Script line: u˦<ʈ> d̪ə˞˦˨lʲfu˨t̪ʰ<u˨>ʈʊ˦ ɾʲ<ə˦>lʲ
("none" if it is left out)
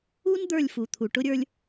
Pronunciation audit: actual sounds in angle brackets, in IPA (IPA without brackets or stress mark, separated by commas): n, u˨, ə˞˦